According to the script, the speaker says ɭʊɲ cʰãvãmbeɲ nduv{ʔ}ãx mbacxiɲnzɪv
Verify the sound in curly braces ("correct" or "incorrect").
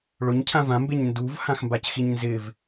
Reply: incorrect